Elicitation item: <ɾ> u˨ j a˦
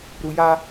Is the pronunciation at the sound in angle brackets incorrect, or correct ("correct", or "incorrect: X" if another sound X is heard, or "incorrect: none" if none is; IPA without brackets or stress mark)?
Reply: correct